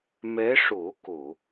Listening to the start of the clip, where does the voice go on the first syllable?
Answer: rising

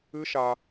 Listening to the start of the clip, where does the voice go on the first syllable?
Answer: high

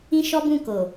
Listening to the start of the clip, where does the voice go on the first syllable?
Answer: high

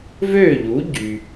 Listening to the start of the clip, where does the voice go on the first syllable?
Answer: falling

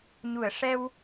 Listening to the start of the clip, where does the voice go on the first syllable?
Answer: low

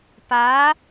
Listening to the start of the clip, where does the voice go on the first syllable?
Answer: rising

